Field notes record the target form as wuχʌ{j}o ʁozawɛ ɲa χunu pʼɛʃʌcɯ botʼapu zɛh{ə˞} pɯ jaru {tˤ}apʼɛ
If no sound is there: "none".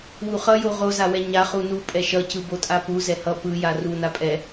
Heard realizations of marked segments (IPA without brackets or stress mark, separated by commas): j, ʌ, n